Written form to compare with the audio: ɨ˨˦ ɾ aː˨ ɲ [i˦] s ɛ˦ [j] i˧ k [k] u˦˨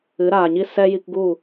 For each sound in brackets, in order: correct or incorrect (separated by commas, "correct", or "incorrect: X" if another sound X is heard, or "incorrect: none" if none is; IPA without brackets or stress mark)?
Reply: correct, correct, incorrect: ɡ